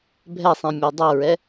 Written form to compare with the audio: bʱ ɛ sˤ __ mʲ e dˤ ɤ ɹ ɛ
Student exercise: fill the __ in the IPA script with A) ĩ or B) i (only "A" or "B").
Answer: A